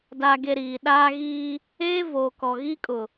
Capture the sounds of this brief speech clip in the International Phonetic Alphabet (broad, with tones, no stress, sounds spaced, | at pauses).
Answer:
d aː˨ ɡ e˨ ɾ iː˨ ɗ aː˦ ɣ iː˦ | eː˦ v oː˨ k ɔ˨ ɣ i˦ kʼ ʊ˨